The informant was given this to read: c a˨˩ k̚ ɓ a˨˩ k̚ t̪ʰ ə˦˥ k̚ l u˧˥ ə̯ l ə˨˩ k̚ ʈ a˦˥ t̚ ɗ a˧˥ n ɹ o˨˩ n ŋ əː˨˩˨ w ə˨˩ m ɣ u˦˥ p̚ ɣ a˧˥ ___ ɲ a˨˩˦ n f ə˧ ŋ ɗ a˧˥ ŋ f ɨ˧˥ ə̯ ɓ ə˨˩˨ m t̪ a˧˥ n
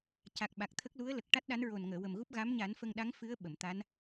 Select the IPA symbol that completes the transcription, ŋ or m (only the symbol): m